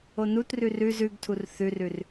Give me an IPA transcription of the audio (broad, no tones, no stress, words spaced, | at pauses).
onutrʉ rʉz ʉɡtʰur θʉrʉr